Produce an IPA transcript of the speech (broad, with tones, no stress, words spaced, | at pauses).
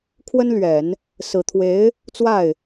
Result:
kʰwə˥nlɥɛ˨˩˦n | sɹ̩˨˩t̪ʰwe˧˥ɪ̯ | t͡swa˥˩ɪ̯